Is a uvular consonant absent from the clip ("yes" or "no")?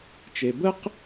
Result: no